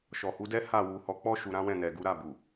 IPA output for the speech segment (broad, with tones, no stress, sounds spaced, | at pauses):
ʃ ɔ˨ h u˨˦ d ɛ˦ h a˦˨ w u˨ h ɔ˨˦ k͡p ɔ˦ ʃ u˧ ɾ ã˦ w ɛ̃˦˨ n ɛ˨ ɡ u˨˦ ɾ a˦˨ b u˨